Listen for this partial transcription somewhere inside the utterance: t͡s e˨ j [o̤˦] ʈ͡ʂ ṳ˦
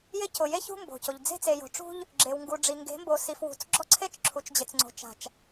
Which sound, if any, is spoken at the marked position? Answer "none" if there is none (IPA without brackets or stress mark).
o̤˨